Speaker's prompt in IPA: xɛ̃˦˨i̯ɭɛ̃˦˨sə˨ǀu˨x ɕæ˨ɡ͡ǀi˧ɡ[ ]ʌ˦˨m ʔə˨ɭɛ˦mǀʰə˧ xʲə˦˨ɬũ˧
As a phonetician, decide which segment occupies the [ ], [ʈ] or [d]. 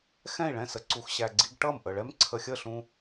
ʈ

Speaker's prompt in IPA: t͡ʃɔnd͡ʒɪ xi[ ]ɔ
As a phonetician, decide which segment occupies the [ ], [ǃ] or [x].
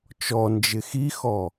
x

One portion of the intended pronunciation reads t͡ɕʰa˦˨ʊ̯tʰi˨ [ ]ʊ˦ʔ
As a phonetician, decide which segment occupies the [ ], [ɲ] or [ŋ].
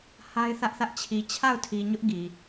ɲ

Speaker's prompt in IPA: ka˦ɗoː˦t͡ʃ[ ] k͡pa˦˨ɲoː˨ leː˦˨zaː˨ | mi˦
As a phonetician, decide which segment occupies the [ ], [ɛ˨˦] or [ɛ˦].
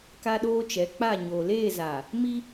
ɛ˨˦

